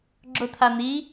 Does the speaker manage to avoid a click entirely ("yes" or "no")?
no